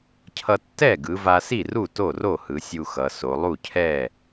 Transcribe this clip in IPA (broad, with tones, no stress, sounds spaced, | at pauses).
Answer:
cʰ ʌ˧ tː ɛ˥˩ ɡ ɯ˩˧ v a˧ s i˥˩ r u˥˩ t o˥˩ r o˥˩ h ɯ˩˧ sʲ u˧ x ʌ˩˧ s o˩˧ lˠ u˥˩ cʰ ɛ˥˩